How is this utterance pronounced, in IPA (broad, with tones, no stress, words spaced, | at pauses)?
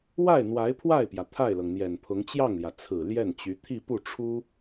wa˥˩ɪ̯ n̪wa˧˥ɪ̯pʰwa˥˩ɪ̯pjä˩ t̪ʰa˥˩ɪ̯lɤ˩ŋn̪jɛ˨˩npʰʊ˧˥ŋ t͡ɕjɑ˥˩ŋljä˩ t͡sʰɹ̩˨˩ ljɛ˥˩nt͡ɕy˧˥ t̪ʰi˥˧pu˥˩ʈ͡ʂʰu˥